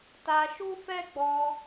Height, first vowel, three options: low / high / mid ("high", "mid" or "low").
low